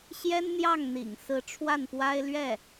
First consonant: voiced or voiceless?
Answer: voiceless